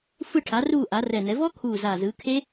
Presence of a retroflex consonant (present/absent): present